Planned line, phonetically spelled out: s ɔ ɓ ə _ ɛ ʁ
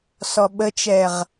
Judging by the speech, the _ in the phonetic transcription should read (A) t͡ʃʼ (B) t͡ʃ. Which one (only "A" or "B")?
B